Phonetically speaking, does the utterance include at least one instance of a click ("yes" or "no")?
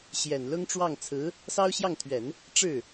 no